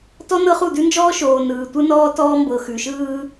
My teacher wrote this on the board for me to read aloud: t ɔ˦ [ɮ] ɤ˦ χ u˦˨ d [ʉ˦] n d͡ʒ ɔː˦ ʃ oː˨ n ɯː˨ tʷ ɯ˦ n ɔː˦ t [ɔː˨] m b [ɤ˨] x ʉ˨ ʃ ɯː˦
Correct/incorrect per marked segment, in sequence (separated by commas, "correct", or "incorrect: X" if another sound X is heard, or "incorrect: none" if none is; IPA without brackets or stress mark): incorrect: n, correct, incorrect: ɔː˦, correct